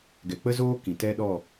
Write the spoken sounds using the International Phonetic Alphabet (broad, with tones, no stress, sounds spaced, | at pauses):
ɡ ɛ˨ k͡p ə˦ z oː˦ k ĩ˨ t ɛ˦ ɗ ɔ˦˨